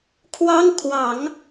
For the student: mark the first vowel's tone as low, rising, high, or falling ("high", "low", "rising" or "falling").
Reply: high